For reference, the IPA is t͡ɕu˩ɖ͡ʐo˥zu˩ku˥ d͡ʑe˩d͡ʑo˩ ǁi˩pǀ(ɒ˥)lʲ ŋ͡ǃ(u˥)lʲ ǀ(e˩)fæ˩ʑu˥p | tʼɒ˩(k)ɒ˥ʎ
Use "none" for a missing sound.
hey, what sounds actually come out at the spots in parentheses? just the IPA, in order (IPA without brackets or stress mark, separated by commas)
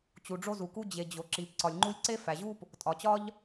ɒ˩, u˥, e˥, t͡ɕ